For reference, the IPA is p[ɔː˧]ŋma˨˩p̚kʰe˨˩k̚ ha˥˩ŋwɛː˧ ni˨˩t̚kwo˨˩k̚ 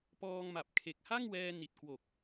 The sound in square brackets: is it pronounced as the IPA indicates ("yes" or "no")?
yes